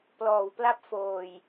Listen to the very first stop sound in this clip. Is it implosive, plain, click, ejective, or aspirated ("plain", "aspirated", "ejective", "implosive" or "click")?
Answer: plain